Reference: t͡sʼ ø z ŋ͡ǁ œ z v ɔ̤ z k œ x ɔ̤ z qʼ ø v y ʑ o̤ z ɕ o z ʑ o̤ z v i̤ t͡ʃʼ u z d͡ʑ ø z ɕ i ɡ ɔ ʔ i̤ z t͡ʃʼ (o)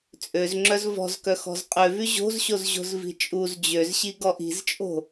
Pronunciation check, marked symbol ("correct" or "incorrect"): incorrect